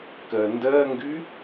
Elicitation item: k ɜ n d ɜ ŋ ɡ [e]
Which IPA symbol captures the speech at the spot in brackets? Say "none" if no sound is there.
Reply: y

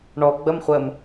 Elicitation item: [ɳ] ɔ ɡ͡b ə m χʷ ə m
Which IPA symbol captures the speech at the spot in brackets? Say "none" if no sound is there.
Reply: ɳ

